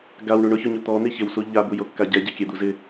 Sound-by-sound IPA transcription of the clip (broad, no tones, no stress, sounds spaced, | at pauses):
ɡ a w ɳ u ɳ ʊ ç ʊ ɲ ʊ t̪ ɔ n̪ i ç ɪ w s u ʎ a b u j o kː a ɟ ɛ ɟ e kʲ ɛ d̪ u z ɪ